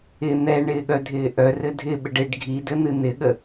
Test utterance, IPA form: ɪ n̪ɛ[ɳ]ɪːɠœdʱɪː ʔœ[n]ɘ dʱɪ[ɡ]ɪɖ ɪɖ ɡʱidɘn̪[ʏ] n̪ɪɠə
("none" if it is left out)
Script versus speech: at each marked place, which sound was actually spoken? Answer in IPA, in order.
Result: ɳ, r, ɓ, ɨ

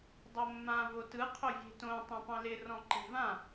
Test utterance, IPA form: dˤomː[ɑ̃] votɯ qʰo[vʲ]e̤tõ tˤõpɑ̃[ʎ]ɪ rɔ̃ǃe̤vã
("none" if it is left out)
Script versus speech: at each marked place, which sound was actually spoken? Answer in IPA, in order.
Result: ã, vʲ, l

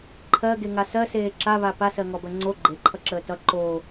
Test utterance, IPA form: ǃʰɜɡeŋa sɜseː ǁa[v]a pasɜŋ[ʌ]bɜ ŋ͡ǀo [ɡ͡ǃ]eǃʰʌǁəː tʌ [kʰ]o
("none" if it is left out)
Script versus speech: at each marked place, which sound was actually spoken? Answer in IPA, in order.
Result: β, ɔ, ɡ͡ǃ, ǃ

